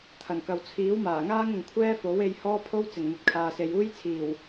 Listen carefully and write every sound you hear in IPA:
t̪ʰ ɐ˨˩ n k ɐ˨ w t͡sʰ iː˨˥ w m aː˨˩ ŋ aː˥ ŋ ʊ˨ ŋ kʷʰ ɛː˥ f o˨˥ w e˧ j h ɔː˥ pʰ o˥ w t͡s ɪ˨˩ ŋ n̪ ɐ˨ t̚ kʰ aː˨ s e˨ j uː˥ j t͡sʰ iː˨˩ w

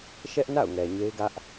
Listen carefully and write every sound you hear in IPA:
ʃ ɛ˦ ʔ n a̰˦˨ ʊ̯ ŋ ɛ˨ ɲ e˦ ɪ̯ ɡ ä˦ ʔ

